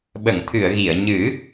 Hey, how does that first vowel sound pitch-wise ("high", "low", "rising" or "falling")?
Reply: low